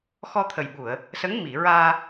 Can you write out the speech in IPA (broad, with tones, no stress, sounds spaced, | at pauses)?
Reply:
x ɔ˧ t̪ʰ ə˨˩ j ɓ u˨˩˨ ə̯ | s ə˧˥ ŋ m i˨˩˨ ɹ aː˧